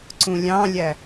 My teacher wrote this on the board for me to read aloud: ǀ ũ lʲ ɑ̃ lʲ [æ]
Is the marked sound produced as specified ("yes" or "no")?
yes